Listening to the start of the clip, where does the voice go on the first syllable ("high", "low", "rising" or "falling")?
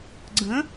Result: rising